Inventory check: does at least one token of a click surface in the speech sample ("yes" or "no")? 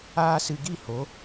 no